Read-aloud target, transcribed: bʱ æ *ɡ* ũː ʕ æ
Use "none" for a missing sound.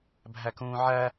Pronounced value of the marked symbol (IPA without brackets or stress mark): k